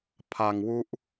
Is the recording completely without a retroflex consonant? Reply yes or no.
yes